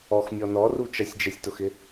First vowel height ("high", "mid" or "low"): mid